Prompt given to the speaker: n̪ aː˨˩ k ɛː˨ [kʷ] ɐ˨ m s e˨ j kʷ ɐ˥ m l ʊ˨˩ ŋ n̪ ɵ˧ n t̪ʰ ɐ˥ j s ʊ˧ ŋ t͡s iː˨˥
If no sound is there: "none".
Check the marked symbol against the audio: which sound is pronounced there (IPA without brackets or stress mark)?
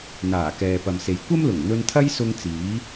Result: p